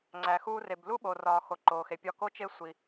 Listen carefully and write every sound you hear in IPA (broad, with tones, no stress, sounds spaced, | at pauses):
ŋ͡ǀ æ˨ x uː˧ r e˨ b l u˦ ɓ o˨ r ɒː˨ x o˨ ǃ oː˨ x e˨ pʲ ɒ˧ k o˧ t͡ʃ e˧ sʷ i˨